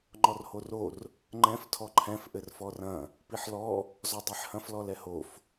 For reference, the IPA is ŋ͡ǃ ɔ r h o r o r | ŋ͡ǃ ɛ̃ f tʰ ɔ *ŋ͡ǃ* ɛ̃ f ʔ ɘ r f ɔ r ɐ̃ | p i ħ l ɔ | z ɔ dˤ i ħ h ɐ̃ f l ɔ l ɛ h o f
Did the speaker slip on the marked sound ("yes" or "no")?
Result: yes